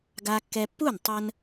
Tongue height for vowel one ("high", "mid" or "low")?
low